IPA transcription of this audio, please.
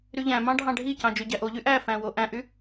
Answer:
ɾyʎæ̃mɑ̃ ɖʱɑ̃ɖʱicɑ̃ d͡ʒøɟæʔoʎy ʔæfæ̃ woʔæ̃ʔy

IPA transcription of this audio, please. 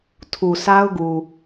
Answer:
tʰu˨sʰa˦ʊ̯ɡu˨

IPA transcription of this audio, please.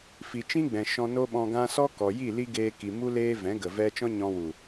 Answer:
fi˨t͡ʃĩ˦ɡ͡bɛ̃˨ ʃɔ̃˧no˦ɓɔ̃˧ɡã˦ sɔ˦kɔ˨ji˦˨ li˦ ɡeː˧ki˨ mu˦leː˦ vɛ̃˨˦ ɡə˨vɛ˦ t͡ʃɔ̃˦ɲɔ̃˧wu˨

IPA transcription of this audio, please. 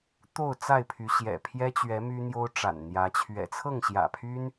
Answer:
t̪o˥˨ʊ̯t͡sa˥˨ɪ̯pʰy˨˦ ɕjɛ̰˨˩pʰjɛ˦t͡ɕɥɛ˨˦ my˦n̪jo˦ʊ̯ ʈ͡ʂa̰˨˩nn̪jä˨˦ t͡ɕʰɥɛ̰˨˩t͡sʰɤ˥˨ŋɕjä̰˨˩pʰy˦n

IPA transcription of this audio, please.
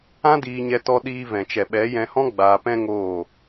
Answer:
ã˦diː˧ɲɛ˧ tɔ˦ɗiː˦ vɛ̃˨t͡ʃɛ˨ɓɛ˨˦ jɛ̃˧hɔ̃˦ ɡ͡baː˧pɛ̃˦ŋoː˦˨

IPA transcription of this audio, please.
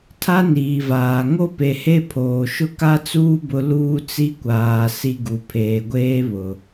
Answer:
tʰa˦niː˨vaː˨ ŋo˦pe˨he˦ pʰoː˨ʃʊ˦ka˦t͡suː˦ bʊ˦ luː˦t͡si˦kʷaː˨ si˦ ɡu˨ pʰeː˨ɡʷeː˦βʊ˨

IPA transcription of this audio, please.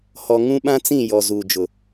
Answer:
hɔ˨ ŋũ˦ɓã˦t͡sĩ˦˨jɔ˨ zuː˨d͡ʒʊ˨

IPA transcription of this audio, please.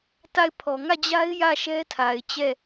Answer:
ta˦˨ɪ̯pʰɔ˨ ŋä˦˨d͡ʑa˦ɪ̯ jä˦˨ ʃɛ˦tʰa˨ɪ̯ t͡ɕɛ˦˨

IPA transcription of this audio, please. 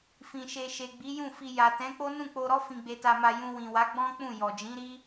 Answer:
fĩ˨ʃe˨ ʃe˨ɡ͡bi˨˦jũ˦˨fi˧ ja˨tɛ̃˨˦k͡po˦ nũ˦˨k͡po˧ɾɔ˦ fĩ˧ɡ͡be˧ta˧ma˧ jũ˧wĩ˨wa˨˦ ɡ͡bɔ̃˦ k͡pũ˦˨ jɔ˨d͡ʒĩ˨˦ɾi˦

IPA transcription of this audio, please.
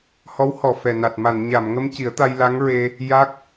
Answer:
hɔ˧˥whɔ˨˩fɛ˨˩na˨˩t̚ ma˨˩˨nɲa˨˩˨mŋə˧m ci˨˩˦ə̯t̪a˧jla˧˥ŋɹe˧ | ja˦˥k̚

